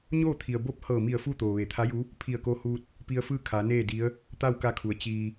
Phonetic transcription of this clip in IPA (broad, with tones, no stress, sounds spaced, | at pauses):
ɲ oː˥˨ t̪ʰ i˩ ə̯ b o˧˥ p̚ h ɤː˧˩ m i˧˩ ə̯ f u˥˨ t̪ oː˩ ʋ e˩˧ t̪ʰ a˧˥ j u˧˥ | pʰ i˧˩ ə̯ k o˧ h uː˧ t̚ | p i˧ ə̯ f ɯː˥˨ kʰ a˩˧ n eː˥˨ d i˧˥ ə̯ | t̪ a˥˨ w k a˧ kʰ u˩˧ ə̯ t͡ɕ iː˧